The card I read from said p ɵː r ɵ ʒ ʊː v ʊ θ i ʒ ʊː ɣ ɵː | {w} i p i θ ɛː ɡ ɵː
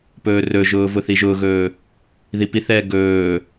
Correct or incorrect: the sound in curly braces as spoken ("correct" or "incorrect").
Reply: incorrect